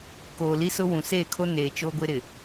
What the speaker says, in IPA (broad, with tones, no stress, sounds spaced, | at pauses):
k oː˨ l i˦ s ʊ˦ w ũ˨ s e˦˨ kʰ o˦ n eː˨ t͡ʃ o˦ ɡʷ ɪ˦ ɾ ɪ˨